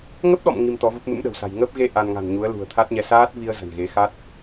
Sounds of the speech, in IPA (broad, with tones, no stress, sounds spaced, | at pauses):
ŋ ə˦˥ p̚ ɗ ɔ̰˧˨ m ŋ i˧ m t̪ ɔ˨˦ v ə˦˥ p̚ m ɨ̰˧˥ m ɗ ə̤˨˩ w s a̤˨˩ j ŋ əː˦˥ p̚ ɣ e˧ ʔ a˧ n ŋ a̤˨˩ n ɲ u˨˦ ə̯ l ṳ˨˩ ə̯ t̪ʰ a˦˥ t̚ ɲ ɛ˨˦ s aː˦˥ t̚ v i˧ ə̯ z ə̤˨˩ n ɣ e˨˦ x a˦˥ t̚